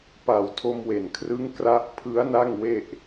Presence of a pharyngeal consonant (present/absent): absent